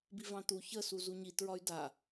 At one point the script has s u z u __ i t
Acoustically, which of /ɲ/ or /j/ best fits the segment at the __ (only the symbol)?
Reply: ɲ